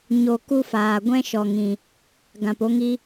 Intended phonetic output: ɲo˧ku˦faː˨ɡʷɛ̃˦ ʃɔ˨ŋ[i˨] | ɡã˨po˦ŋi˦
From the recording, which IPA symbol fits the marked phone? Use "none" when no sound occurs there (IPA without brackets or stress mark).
ĩ˨